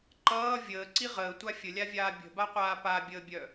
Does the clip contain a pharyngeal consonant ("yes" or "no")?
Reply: no